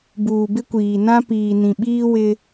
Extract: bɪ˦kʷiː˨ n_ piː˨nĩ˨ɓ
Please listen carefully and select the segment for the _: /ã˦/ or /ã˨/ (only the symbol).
ã˦